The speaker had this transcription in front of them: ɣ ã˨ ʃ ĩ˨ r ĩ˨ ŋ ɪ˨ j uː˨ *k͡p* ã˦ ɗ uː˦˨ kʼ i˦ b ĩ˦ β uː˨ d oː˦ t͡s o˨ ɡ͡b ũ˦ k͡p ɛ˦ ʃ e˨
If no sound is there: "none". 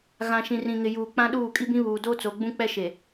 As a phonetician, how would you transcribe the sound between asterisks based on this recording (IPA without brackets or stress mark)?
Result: k͡p